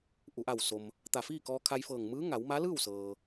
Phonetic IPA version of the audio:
ʔ u˩˧ ʔ a˧˩ w s o˩ m | t̪ a˧˩ f iː˥˨ k ɔː˧ kʰ a˧ j f ɤː˧˩ ŋ m ɯː˧˥ ŋ a˩˧ w m a˧˥ l ɯː˥˨ w s ɤː˩

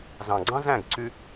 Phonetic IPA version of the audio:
z ɑ̃˨ ɡ͡ǀ ɑ̃˦ z æ̃˦˨ ɡ ǀ y˧

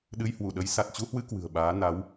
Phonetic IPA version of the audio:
ɗ ɨ˧ j h w u˧˩ ɗ ə˨˦ j s a˨˩ t̚ t͡ɕ u˧ h w ɨ˧ k w ɨ̤˨˩ ə̯ ɓ aː˨˦ n a˨˦ w

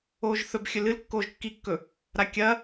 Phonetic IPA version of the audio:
oː ʒ θ ɵ b xʲ ɵ l ɨ l kː oː ʒ kː i kː ɵ | ɾ a kʲ ɐ

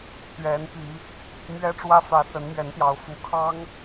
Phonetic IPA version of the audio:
t̪ ɥ ɛ˨˦ n p i˨˦ | m ɥ ɛ˦ ʈ͡ʂ w ä˦ f ä˨˦ s ə˨˦ n m ɥ ɛ˨˦ n t̪ j ɑ˨˦ ʊ̯ f u˨˦ kʰ ɑ˦ ŋ

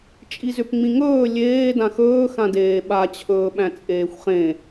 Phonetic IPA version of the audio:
t͡ʃʼ i z ʏ p ŋ͡m ĩ ŋ ɵː lʲ eː d ã x ɵː x ã d eː ɓ a t͡ɕʰ ɵː ɓ æ̃ t͡sʼ eː xʷ χ ẽ

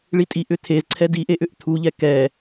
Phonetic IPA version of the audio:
ɭ i tʼ i ʔ ʏ tʰ e z ǀʰ ɛ d i ʔ e ʔ ʏ ʔ tʰ u ʎ ɛ k ɛ

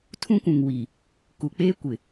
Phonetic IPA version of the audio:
tʰ ũ˦ kʷ ũ˨ ŋ w i˨ | k u˨ k͡p eː˦ kʷ ɪ˨

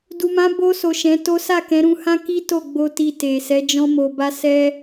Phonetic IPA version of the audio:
d u˨ m ã˨˦ b o˧ s o˨ ʃ ɛ̃˨˦ t o˦ s a˦˨ k ɛ̃˨˦ ɾ ũ˧ h ã˦ k i˦ t o˦˨ ɡ͡b o˧ t i˧ t e˨ s ɛ˨˦ d͡ʒ ɔ̃˦ m o˧ b a˦ s ɛ˦

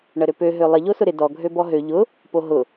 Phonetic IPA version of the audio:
ɳ ə ɾ ø p ø ɦ ø lˠ ɪ ʎ o s ʊ ɾ ɪ d ɔ ɡʱ ø b ɔ ɦ ø ʎ ʊ | p o ɦ ʊ

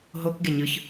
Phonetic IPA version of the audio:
ɦ o k ɡ e ɲ ɯ ç

